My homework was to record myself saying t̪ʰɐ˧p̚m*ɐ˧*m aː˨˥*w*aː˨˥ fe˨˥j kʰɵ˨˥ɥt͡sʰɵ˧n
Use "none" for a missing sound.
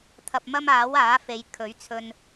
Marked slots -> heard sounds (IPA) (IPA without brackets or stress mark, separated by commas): ɐ˥, w